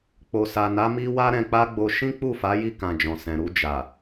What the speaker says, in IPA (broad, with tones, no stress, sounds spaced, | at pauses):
k͡p o˨ s a˨ n a˨˦ m i˧ w a˦ ɾ ɛ̃˧ k͡p a˦ ɡ͡b o˧ ʃ ĩ˦ k͡p u˦˨ f a˨˦ j i˦˨ k ã˨ d͡ʒ ɔ̃˨ s ɛ̃˨ ɾ u˧ d͡ʒ a˨